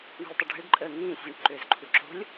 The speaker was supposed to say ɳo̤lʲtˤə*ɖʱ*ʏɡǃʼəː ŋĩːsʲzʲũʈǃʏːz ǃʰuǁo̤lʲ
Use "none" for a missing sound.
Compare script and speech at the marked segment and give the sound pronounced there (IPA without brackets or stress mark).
ɖʱ